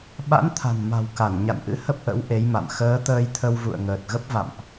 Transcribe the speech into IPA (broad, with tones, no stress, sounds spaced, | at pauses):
ɓ a̰˧˥ n t̪ʰ a̤˨˩ n m a̤˨˩ w k a˧˩ n ɲ a̰˧˨ n ʔ ɨ̰˧˥ h ə˦˥ p̚ ʔ ə̰˧˥ w ʔ e˨˦ j m a̰˧˨ m x əː˨˦ t̪ əː˧ j t̪ʰ ə˧ w v ṵ˧˨ ə̯ ŋ əː˨˩ t̚ ɣ ə˦˥ p̚ v a̰˧˨ m ʔ